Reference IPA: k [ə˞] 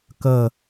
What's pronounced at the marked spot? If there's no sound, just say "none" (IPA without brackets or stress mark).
ə